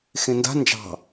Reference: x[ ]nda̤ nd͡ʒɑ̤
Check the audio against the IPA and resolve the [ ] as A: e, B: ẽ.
B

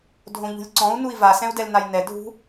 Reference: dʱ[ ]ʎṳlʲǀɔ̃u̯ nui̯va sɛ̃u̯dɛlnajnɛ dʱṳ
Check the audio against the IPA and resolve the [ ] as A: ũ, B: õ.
B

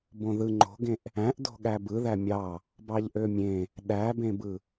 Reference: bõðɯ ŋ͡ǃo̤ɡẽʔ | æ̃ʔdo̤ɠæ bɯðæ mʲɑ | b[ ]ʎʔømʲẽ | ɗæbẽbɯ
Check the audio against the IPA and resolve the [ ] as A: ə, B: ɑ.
B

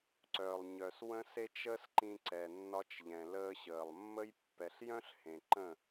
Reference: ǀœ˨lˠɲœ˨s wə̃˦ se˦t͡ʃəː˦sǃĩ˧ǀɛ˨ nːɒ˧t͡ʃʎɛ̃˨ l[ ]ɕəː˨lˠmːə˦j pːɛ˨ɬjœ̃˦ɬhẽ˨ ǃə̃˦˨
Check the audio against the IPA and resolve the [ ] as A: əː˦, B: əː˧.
B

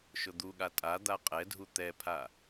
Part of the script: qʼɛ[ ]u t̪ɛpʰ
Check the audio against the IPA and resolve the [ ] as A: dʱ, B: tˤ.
A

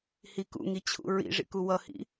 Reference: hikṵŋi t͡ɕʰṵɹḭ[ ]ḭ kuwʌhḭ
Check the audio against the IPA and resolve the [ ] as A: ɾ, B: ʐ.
B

